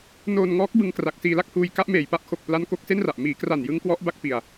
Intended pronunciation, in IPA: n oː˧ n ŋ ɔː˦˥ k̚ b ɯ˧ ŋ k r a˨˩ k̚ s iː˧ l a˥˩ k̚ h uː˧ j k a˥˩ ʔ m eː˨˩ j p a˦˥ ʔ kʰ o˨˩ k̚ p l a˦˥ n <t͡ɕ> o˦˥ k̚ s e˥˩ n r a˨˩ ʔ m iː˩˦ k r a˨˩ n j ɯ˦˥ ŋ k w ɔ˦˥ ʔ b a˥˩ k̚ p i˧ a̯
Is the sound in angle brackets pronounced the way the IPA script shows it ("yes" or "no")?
no